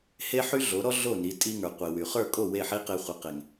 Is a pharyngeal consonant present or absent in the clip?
present